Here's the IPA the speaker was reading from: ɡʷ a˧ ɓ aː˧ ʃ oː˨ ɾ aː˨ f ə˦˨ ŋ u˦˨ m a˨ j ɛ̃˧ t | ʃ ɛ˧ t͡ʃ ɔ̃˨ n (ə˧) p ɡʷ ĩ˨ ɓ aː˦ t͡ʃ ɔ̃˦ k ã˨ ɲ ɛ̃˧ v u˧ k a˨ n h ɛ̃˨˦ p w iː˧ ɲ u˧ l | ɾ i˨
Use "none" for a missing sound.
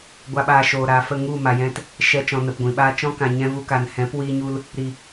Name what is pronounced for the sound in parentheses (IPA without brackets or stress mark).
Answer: ə˨